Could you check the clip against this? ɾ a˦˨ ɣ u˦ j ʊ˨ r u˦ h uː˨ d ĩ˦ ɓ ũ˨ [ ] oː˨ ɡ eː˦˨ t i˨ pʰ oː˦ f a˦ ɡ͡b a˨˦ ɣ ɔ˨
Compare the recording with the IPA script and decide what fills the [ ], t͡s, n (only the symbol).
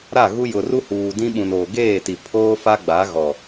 n